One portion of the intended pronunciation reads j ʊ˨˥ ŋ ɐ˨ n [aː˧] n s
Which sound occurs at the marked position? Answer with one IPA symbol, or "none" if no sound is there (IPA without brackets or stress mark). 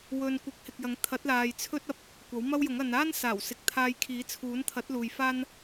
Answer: aː˥